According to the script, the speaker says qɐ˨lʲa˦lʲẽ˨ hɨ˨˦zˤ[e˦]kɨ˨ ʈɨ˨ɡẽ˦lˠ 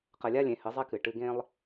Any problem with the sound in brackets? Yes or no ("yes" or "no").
no